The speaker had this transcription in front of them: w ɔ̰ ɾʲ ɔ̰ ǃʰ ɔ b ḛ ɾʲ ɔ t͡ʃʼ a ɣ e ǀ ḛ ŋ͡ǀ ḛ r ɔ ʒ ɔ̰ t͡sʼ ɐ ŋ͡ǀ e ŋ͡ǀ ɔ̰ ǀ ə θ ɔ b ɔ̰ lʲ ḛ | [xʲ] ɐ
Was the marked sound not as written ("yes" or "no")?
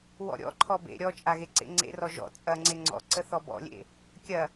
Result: yes